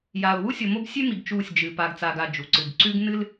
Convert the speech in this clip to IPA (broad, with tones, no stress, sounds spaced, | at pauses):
j a˨ ʊ̯ w u˦ sʲ o˨ m o˦ b sʲ ʉ˦ m i˨ ɡ t͡ʃ uː˦˨ sʲ d͡ʒ ɨ˨ p a˨ ɡ t͡s a˨ ɡ a˨ d͡ʒ u˨ ǀ ɨ˨ ɡ ǀ ʉ˦ ɡ n ɨ˦ l